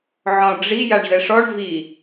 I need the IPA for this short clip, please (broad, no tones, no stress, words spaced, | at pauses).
ʕɔ̃ ɖ͡ʐi jaɳzɛʂɔɳ vi